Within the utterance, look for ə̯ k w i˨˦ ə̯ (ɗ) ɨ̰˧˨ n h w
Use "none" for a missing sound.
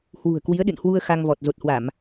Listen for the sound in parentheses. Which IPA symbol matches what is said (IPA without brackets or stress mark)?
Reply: ɗ